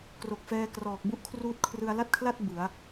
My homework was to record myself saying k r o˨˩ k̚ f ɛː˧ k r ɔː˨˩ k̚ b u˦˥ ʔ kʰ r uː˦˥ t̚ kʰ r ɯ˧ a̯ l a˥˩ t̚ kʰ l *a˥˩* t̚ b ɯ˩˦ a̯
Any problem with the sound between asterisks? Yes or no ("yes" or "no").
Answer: no